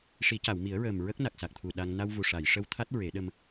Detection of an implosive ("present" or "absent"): present